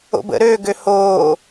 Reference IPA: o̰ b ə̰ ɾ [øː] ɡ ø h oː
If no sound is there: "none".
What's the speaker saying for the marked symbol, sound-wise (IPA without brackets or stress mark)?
øː